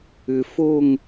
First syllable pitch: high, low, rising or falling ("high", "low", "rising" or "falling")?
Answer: low